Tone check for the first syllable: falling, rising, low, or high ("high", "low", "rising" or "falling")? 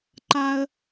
high